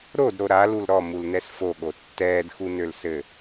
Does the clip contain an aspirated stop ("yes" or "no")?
no